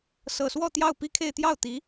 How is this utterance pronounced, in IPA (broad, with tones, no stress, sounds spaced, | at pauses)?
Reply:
s ɤ˨˩ s w ɔ˥˧ t̪ j ɑ˥˩ ʊ̯ p i˥ kʰ e˥˧ ɪ̯ t̪ j ɑ˥˩ ʊ̯ t̪ i˧˥